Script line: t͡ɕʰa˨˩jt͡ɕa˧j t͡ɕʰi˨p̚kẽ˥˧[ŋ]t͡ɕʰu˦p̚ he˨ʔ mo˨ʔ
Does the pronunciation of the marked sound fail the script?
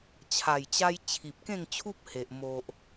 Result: no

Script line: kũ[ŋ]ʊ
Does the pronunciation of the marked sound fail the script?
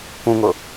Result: no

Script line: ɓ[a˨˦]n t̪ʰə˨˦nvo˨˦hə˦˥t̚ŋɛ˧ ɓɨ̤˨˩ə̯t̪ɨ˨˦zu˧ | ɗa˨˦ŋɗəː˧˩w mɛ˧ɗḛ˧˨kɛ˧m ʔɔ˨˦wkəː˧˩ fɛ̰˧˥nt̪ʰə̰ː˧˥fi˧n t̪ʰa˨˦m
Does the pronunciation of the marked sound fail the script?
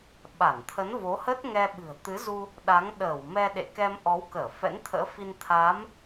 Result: yes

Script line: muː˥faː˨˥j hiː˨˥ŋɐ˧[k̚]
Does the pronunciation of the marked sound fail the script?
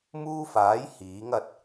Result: yes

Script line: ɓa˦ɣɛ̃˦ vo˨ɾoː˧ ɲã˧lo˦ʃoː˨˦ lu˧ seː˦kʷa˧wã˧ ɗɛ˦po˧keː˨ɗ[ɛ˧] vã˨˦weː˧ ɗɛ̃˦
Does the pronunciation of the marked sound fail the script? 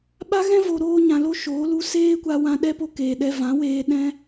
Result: no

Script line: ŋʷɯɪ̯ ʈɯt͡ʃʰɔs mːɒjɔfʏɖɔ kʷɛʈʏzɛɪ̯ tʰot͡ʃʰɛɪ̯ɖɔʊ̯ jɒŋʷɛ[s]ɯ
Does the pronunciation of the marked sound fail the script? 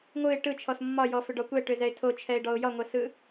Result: no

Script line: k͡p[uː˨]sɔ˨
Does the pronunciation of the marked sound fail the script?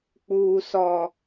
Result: no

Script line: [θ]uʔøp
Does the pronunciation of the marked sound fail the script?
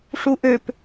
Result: yes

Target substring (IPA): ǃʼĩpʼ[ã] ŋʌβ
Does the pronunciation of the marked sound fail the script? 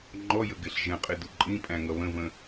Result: yes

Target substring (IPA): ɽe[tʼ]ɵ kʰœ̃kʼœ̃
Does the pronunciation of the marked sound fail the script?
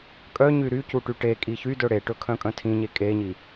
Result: yes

